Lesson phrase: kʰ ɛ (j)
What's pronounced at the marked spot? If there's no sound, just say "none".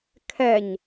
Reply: ɲ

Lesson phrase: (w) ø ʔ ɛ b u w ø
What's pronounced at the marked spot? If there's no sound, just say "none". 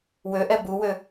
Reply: w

